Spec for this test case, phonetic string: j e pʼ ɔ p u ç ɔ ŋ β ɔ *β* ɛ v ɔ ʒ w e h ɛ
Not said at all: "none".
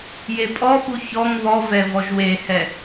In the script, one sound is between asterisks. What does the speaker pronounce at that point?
v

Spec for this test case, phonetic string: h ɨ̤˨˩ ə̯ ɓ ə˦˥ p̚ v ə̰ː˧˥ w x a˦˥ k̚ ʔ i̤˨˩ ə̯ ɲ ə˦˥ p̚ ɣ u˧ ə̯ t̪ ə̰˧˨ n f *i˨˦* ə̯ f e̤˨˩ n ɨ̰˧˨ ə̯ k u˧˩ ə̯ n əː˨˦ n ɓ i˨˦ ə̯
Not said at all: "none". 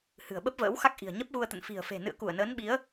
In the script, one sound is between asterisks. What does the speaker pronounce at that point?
i̤˨˩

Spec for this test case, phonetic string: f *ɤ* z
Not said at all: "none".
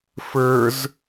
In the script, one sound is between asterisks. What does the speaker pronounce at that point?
ə˞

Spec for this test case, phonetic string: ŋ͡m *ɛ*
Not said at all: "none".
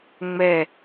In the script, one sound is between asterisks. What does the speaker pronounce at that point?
ɛ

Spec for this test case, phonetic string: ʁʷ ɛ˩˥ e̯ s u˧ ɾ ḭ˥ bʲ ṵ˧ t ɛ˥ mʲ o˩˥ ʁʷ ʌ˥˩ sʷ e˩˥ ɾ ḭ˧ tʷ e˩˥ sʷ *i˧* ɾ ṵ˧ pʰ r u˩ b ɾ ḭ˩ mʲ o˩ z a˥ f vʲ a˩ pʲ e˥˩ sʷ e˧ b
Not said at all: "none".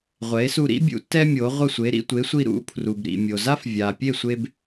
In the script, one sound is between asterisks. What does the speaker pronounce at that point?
i˧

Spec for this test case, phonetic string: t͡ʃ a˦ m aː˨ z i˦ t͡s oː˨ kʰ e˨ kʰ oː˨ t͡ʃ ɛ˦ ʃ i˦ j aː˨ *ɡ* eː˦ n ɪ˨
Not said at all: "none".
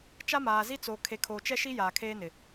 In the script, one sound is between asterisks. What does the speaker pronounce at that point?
kʰ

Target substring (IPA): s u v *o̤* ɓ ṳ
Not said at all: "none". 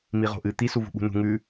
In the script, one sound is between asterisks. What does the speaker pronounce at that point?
ṳ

